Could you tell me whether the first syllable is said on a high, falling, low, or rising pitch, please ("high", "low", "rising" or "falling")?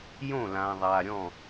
falling